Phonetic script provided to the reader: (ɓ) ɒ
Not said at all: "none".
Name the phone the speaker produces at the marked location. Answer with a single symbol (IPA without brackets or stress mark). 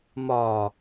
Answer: m